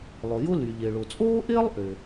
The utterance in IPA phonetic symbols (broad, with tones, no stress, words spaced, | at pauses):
lˠʊ˩jʊ˥ly˩ ʎɪ˩ɭʊ˩t͡sʼoː˥ʔɪː˥lˠ ʔʏ˩